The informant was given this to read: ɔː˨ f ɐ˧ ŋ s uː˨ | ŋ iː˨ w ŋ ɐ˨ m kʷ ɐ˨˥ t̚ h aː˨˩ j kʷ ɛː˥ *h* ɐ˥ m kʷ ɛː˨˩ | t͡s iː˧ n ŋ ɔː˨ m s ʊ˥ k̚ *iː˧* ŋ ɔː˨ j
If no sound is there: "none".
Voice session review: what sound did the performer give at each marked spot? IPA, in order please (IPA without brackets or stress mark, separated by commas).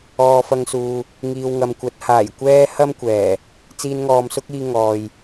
h, iː˧